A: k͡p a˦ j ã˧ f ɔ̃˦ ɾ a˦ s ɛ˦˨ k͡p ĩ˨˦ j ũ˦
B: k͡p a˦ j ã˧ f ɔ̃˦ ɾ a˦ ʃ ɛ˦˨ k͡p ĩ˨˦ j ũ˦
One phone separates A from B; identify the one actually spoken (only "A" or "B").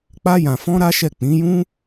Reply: B